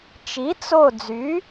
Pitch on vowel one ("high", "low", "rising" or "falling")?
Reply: rising